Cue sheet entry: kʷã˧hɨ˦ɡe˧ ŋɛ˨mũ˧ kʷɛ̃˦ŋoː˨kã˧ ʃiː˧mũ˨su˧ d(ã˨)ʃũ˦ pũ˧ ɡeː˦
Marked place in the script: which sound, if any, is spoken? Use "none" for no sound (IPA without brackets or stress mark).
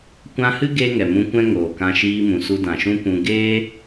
ã˨